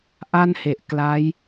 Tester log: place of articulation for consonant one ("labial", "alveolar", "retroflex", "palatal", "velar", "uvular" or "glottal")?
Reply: glottal